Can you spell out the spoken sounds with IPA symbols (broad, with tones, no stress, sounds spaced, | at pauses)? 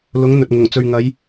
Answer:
l ʊ˨˧ ŋ n̪ ɵ˨ t̚ ŋ ʊ˨˩ ŋ t͡s ɵ˨ ɥ ŋ ɐ˨˧ j